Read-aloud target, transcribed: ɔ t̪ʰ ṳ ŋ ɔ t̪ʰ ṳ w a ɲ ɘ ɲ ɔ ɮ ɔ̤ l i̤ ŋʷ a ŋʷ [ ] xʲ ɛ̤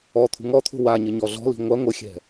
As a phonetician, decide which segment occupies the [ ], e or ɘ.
ɘ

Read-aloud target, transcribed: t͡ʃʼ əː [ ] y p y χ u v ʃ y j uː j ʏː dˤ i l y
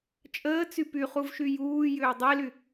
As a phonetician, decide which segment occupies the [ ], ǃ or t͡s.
t͡s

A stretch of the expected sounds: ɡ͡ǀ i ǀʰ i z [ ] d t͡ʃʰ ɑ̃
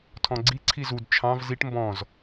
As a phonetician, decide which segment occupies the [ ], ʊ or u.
u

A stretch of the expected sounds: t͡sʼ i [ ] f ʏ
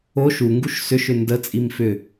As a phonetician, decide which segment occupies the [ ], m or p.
m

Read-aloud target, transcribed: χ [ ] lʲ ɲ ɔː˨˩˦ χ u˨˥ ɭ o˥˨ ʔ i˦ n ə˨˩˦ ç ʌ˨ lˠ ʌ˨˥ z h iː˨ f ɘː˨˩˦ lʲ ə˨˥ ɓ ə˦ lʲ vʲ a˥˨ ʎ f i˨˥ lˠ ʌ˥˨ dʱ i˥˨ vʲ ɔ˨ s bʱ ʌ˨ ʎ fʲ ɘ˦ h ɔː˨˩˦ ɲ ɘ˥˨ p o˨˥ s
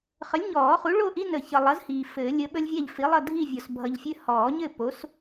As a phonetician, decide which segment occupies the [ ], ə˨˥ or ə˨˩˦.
ə˨˥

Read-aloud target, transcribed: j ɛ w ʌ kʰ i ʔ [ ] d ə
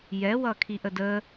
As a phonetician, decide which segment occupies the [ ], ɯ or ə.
ə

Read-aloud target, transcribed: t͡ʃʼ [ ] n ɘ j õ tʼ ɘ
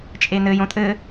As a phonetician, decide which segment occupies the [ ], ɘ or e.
e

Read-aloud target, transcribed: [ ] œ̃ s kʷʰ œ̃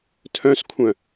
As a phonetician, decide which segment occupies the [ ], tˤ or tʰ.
tʰ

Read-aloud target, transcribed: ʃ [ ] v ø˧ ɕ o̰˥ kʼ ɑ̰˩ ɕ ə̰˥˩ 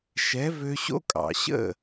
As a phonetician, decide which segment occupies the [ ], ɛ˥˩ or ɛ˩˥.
ɛ˩˥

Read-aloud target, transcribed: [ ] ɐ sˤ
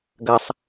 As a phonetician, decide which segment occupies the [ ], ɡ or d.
ɡ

